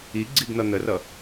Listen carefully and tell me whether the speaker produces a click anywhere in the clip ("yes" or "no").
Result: yes